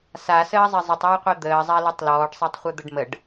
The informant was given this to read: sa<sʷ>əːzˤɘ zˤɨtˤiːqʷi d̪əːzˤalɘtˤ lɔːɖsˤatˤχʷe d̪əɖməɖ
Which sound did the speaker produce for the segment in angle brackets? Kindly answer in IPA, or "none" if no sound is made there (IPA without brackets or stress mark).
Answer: s